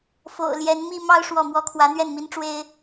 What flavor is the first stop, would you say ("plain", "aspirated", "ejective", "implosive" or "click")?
aspirated